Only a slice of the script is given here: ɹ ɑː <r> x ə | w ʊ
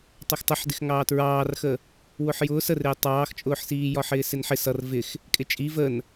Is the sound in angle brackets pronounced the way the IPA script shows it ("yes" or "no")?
yes